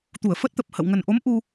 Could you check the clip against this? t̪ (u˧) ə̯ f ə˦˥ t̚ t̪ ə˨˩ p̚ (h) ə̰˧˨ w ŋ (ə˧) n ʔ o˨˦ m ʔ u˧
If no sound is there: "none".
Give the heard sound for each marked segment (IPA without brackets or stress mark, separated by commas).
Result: u˧˩, h, ə˨˩